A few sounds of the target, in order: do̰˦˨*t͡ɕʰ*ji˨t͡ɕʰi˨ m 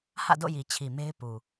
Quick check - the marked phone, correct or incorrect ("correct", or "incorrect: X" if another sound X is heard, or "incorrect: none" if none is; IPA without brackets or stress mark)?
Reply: incorrect: none